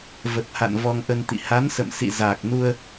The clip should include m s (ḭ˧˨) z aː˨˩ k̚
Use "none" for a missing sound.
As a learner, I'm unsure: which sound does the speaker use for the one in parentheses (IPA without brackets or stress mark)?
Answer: ḭ˧˨